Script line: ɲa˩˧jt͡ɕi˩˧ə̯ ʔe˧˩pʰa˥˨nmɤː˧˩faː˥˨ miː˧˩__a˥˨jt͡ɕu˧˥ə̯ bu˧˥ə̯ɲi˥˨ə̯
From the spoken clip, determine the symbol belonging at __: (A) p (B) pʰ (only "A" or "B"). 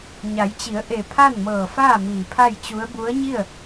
B